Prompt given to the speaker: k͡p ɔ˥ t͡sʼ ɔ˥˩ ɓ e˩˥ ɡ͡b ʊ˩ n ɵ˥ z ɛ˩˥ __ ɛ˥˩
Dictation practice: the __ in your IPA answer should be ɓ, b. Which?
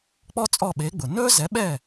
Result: ɓ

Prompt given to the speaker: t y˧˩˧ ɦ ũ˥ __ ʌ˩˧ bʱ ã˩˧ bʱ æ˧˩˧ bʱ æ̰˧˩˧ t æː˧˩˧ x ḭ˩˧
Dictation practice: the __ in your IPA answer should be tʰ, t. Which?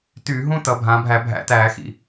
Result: t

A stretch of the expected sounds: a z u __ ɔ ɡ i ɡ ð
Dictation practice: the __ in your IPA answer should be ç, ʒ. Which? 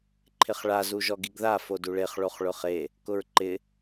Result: ʒ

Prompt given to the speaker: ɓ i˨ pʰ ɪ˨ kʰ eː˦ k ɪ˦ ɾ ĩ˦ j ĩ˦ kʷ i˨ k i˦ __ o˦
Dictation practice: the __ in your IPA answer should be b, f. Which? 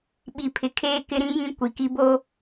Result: b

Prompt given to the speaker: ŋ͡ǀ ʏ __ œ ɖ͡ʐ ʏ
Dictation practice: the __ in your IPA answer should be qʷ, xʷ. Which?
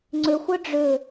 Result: xʷ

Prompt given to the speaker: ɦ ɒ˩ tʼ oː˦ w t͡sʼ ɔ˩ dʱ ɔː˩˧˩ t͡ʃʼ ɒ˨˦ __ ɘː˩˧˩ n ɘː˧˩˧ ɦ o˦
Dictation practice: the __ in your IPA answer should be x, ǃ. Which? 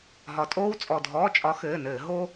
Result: x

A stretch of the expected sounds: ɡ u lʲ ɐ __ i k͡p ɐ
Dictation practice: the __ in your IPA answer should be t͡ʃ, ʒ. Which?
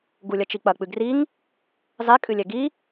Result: t͡ʃ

